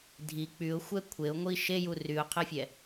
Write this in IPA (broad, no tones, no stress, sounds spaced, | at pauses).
dʱ i k͡p y ʊ̯ xʷ ɛ kʷʰ e ʊ̯ ŋʷ i ʃ e j u r y ʊ̯ qʰ ɜ fʲ ɛ